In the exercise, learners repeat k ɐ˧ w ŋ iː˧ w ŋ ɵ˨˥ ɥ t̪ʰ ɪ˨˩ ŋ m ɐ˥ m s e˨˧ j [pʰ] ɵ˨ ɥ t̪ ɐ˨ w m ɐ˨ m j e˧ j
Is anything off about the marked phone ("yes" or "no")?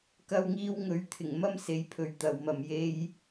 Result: no